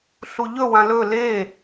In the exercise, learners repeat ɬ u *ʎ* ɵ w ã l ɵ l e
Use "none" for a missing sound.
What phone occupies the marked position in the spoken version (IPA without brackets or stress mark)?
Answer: ʎ